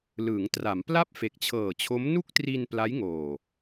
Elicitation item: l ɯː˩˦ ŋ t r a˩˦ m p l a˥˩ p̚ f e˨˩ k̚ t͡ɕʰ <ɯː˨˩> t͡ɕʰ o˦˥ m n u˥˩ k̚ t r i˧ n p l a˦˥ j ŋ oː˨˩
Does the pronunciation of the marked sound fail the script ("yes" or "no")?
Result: yes